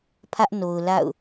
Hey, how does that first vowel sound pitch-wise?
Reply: high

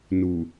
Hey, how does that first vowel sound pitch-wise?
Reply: low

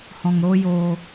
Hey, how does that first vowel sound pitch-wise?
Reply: low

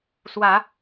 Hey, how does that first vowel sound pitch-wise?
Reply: low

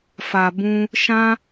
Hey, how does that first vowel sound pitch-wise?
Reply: low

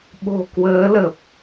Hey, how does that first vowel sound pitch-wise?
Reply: low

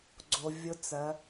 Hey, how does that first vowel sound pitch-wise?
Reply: low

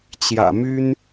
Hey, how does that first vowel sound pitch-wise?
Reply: low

